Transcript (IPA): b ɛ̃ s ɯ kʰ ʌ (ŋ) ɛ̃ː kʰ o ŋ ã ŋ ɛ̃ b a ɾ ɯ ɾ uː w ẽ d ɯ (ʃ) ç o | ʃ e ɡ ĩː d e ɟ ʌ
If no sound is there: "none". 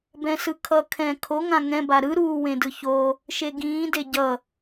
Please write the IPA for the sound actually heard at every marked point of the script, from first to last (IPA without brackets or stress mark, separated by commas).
kʰ, none